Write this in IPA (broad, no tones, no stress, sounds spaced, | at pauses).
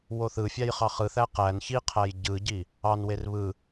w o θ ɯ fʲ æ j χ ɑ χ ɯ θ æ q æ n ç i qʰ æ j ɟ ɯ ɟ i | ɑ n w e r β ɯ